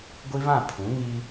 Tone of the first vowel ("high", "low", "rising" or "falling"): high